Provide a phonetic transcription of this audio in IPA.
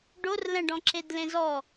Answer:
ɖorlɛ̃ɖɔ̃ǁed lẽzɔ

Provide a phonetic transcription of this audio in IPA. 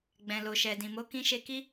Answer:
ɡ͡bɛ̃˨lo˨ʃɛ˨ dĩ˨mo˨˦ kĩ˧ʃe˧ki˦

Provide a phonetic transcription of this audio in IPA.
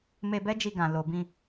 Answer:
me˧ bɛ˦d͡ʒi˧ɡã˨ lo˨bĩ˧

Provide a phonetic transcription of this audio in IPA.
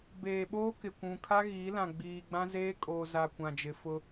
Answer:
beː˨ɓoː˦ kɪ˨kʷũ˨ kʰa˦ɣiː˨˦lã˨ ɡ͡biː˨ɡ͡bã˦zeː˦ kʼoː˨za˨ kʷã˨d͡ʒɪ˨fʊ˦

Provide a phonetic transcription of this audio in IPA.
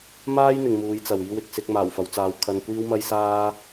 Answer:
maː˥jn̪ɪ˨ŋ muː˨˧jt͡sɐ˨w iː˧wɪ˨k̚ sɪ˧k̚ maː˨˩wfɐ˨˧wt͡saː˨˧w kʰɐ˧nkʷiː˥wmɐ˥jsaː˥

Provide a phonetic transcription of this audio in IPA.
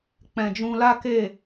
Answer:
k͡pɛ̃˨d͡ʒũ˧la˦ke˦˨

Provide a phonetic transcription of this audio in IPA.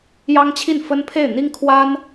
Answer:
jɑ˥ŋt͡ɕʰi˥˩nfə˥n pʰe˥˩ɪ̯n̪i˥ŋkʰwa˥n

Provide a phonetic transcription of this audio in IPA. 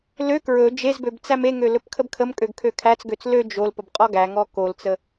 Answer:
lø kɹɵ d͡ʒezbøb t͡sæmeŋø lɵpkʰəbkʰəmkʼøɡ kʰøkʰæt͡sɡøt͡s lø d͡ʒol pəbqʼɔɡæŋɔ kolt͡sə

